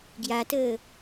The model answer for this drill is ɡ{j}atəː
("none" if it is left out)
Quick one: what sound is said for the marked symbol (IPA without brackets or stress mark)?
j